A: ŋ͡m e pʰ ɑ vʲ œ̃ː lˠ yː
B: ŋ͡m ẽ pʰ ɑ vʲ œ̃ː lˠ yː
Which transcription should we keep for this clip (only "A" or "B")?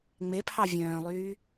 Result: A